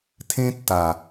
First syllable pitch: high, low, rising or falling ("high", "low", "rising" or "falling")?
high